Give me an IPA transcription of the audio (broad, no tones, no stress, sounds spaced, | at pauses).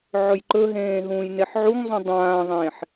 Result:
ʕ ɵ j ǃ ɵ ɦ ẽː ɦ ũː j n e ħ ʕ u ŋ zˤ ũ dˤ ãː ðˤ ẽː ħ